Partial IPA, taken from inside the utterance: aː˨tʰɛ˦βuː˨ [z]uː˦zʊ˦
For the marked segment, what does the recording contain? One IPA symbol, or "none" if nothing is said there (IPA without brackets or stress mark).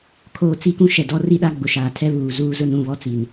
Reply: z